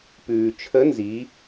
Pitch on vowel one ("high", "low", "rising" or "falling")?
low